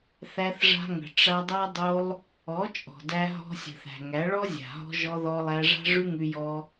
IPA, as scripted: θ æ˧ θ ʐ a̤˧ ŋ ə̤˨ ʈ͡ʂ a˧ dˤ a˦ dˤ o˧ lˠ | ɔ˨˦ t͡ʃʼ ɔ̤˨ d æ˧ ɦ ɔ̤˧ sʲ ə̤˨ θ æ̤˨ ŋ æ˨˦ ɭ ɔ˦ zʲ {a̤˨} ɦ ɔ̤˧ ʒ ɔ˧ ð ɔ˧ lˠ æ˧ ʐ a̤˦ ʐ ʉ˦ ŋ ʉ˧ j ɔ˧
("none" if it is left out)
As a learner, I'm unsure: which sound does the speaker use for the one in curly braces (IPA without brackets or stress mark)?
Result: a̤˨